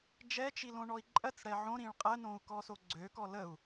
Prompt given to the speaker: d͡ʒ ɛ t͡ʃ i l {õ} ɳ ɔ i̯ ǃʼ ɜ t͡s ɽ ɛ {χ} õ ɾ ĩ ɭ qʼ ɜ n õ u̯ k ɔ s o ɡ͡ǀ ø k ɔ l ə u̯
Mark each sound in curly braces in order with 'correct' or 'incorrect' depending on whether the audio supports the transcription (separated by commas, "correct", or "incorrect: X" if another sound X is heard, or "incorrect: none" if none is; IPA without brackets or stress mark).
correct, incorrect: ʕ